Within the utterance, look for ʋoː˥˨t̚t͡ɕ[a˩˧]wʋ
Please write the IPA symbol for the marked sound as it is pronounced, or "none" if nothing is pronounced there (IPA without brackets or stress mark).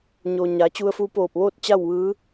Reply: a˥˨